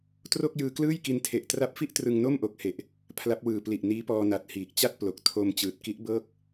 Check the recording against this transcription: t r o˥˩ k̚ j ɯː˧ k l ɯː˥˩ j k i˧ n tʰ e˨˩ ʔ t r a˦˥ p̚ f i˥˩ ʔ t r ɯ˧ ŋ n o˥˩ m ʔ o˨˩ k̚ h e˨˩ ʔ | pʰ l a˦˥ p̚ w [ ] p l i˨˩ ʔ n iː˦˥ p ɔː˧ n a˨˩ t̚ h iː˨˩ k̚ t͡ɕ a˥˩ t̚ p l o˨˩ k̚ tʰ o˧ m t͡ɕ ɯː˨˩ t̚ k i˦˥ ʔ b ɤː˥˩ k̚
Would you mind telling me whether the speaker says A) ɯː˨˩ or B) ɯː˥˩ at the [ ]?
A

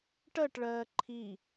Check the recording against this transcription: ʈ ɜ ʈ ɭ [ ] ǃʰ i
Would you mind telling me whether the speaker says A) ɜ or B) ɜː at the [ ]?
B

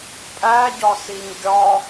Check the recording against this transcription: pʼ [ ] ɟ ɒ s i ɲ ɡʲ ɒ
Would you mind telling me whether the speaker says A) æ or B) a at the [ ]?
A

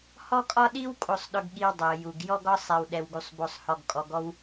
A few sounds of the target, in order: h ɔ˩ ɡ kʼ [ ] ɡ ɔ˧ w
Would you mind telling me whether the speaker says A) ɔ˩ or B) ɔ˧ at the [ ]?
A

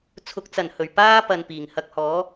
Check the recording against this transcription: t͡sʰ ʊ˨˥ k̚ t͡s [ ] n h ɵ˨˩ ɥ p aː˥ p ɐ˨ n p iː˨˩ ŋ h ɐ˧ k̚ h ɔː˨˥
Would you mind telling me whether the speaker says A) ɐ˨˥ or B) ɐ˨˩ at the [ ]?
B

